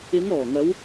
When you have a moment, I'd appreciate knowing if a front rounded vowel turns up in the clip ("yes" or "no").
no